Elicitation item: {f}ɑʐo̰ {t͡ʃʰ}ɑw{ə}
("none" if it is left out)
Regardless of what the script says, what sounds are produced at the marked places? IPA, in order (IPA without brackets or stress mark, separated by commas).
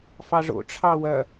f, ʈ͡ʂʰ, ɐ